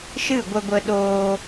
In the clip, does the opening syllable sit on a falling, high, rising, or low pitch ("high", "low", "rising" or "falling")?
falling